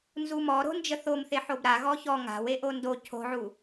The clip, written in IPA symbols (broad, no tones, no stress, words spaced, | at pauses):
nzumɔɾo̤ nd͡ʒəθomθe ħobɾa ɣɔçɔ ŋa̤weʔo ndo cʰo̤ʕu